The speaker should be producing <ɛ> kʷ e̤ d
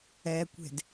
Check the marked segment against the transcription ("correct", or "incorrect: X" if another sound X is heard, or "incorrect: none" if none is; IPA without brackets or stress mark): correct